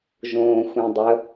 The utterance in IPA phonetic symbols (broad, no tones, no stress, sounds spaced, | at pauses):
ʒ õː xʷ ẽ dˤ ə